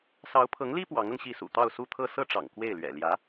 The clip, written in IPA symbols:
sɑ˧˥ʊ̯pʰɤ˧˥ŋli˥ pwɑ˧˥ŋɤ˧ŋɕi˥˩ sṵ˨˩t̪ɑ˥˧ʊ̯su˥˧t̪ʰɤ˥˧ sɤ˥˩ʈ͡ʂɑ̰˨˩ŋ kwe˥˩ɪ̯lɥɛ̰˨˩ ljä˧˥

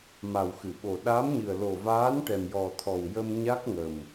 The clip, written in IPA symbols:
ma˨˩wxɨ˨˩˨ɓo˨˩ ɗa˧˥mɲɨ˨˩ə̯ lo˨˩vaː˧˥n ʈɛ˨˩mjɔ˨˩t̪ʰɔ˨˩w jə˧mɲa˦˥k̚ŋə˨˩m

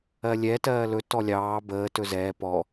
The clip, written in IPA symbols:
ɜlʲɛ tɜːlɵ tɔlʲɑː bəː tɵzɛː pɔ

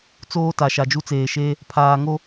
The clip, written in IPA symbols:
t͡soː˦ta˨ ʃa˨d͡ʒu˦t͡seː˨ʃeː˦ | pʰaː˨ŋo˦

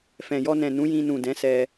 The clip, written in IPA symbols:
fɛ̃˨jɔ˧nɛ̃˨ nũ˨˦jĩ˧nũ˨ dɛ̃˨˦sɛ˧

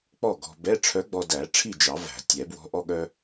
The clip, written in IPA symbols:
k͡pɔ˥˨ ɡɔ̤˧ bɛ˧˥˧ʈ͡ʂʰœ˧˥ɡ͡bɔ˧dæ˨˩˦ ʈ͡ʂʰi˥˨d͡ʒɑ˨˩˦ væ̤˨˩˦tʲɛ˨˩˦bwɔ̤˧˥ ʔɔ˥ɠœ˥

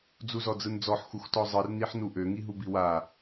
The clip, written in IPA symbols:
d͡zuzɔd͡zɯnd͡zɔħ xuxtɔzˤɯr niħnuʔø ŋiɦubiwa

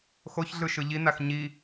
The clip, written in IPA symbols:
xoçɮɯʃɯ ʎinax ɲi

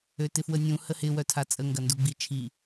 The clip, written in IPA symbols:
øtɪfwənʲũ həhɪ wœtʰat͡sʼə ŋɡɐnduɡ͡bit͡ʃʰi

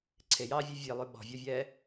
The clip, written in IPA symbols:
ǀʰejɑːvʲo vʲelˠʉ ɓɔ̤vʲɔvʲɛː

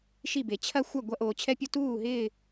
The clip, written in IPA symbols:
ʃi˥˧be˧ t͡ɕʰɐ˥xʷɐ˥˧ ɡʷɐ˥ʔoː˧t͡ɕʰɛ˥pʲo˥ tuː˥˧ɦɪː˥˧

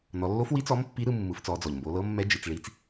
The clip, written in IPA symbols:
nɔ˩˧lːo˧˥f wi˧˥t͡sɔ˧˥m pːi˧˥ɾɯ˧mːɯ˩˧ft͡sɔ˩˧ d͡zɔ˩ʎmbo˩˧ lɤ˧˥mːɛ˧˥d͡ʒi˩˧t͡sɭi˧˥t͡s

